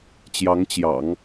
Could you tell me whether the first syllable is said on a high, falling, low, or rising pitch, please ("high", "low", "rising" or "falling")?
rising